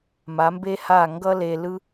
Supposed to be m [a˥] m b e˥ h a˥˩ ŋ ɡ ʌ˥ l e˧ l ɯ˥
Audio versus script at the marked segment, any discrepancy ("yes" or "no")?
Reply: yes